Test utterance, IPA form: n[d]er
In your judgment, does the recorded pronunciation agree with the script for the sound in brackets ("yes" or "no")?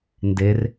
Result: yes